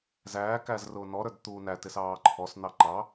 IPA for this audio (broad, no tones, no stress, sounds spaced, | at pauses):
z æː k æ z r ʊː n ɔ ɾ ə˞ d t̪ uː n æ t ɪ s ɑː ǃʰ ɔ s n̪ ɑ ǃ ɑ